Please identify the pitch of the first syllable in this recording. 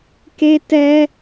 high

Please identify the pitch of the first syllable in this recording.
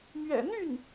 low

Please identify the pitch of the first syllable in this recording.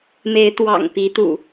rising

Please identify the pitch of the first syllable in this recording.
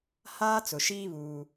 high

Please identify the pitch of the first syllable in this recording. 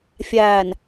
low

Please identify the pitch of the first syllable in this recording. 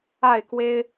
falling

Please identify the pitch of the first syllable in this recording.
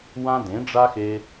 high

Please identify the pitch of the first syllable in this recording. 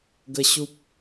high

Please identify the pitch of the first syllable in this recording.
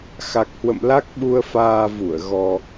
low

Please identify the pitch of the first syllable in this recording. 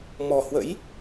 low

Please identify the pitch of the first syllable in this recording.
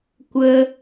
high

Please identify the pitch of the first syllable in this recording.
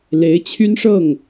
rising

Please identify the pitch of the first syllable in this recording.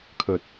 low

